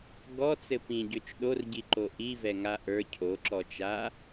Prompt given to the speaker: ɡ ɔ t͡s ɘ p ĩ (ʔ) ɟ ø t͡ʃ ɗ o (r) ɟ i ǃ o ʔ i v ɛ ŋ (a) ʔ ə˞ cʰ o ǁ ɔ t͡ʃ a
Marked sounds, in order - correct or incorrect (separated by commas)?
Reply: incorrect, correct, correct